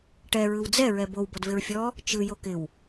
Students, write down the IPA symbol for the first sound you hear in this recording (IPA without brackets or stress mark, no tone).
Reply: ʈ